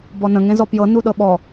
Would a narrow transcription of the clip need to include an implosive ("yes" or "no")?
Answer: yes